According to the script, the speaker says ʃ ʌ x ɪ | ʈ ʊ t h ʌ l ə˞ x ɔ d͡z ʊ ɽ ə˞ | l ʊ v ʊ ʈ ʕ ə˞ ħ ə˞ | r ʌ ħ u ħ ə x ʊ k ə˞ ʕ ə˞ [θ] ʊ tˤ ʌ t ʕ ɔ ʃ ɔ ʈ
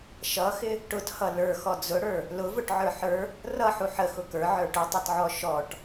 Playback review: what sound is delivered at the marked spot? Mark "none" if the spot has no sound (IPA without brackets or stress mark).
ʈ